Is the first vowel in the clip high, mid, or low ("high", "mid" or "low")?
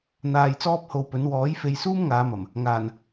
low